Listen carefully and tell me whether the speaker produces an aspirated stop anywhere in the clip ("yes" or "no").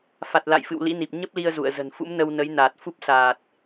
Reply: no